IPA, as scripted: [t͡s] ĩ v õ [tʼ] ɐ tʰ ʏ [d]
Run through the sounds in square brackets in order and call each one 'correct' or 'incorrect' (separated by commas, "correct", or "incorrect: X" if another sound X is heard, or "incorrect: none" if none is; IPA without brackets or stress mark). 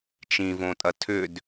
incorrect: t͡ʃ, correct, correct